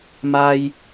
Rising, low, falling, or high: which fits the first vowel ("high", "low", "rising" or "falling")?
high